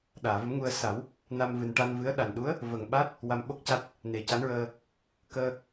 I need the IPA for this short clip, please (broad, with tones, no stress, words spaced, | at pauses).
ɗaː˨˩˨və˧˥mŋu˧ə̯ sa˨˩˦w | na˧mvɨ˨˩n ʈa˧nvɨ˧˥ə̯ ɗa˨˩nɗu˧˥ə̯ | və˨˩ŋ ɓa˦˥t̚ | wa˧mɓo˦˥k̚ca˦˥t̚ | ne˨˩ca˧˥nɹəː˧ | kəː˧